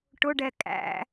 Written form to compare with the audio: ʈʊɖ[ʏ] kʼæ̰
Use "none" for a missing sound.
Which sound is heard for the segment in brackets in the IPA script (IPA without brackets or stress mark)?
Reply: ɛ